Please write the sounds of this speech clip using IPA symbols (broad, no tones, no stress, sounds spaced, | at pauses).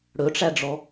ɽ ɵ ʈ͡ʂ æ ɖ͡ʐ ɔ